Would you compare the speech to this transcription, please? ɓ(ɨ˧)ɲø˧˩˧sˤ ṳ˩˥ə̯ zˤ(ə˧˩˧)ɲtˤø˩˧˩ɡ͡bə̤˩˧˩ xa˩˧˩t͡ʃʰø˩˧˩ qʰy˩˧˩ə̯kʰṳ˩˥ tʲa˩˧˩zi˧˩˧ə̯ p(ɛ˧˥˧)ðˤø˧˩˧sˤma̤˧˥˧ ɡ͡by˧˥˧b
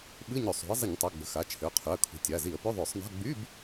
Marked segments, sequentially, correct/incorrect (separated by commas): incorrect, correct, incorrect